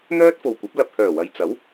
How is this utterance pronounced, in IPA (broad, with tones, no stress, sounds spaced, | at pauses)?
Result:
n̪ œː˥ t̚ f o˨ w kʷ ɐ˨˥ p̚ l ɐ˨ p̚ h œː˨˩ w ɐ˨ j t͡s ɐ˨˥ w